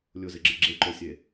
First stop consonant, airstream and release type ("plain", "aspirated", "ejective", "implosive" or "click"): click